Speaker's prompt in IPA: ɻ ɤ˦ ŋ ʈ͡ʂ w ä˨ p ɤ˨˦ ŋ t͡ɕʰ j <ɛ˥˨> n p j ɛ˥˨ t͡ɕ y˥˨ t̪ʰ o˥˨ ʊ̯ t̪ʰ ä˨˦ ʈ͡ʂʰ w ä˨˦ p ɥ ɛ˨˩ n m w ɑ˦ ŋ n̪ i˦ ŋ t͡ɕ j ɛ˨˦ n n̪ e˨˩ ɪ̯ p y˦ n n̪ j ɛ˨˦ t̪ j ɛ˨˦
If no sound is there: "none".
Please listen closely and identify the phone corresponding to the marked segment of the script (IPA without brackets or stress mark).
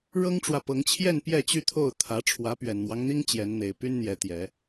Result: ɛ˥˨